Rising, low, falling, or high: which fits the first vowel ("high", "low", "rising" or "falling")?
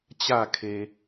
falling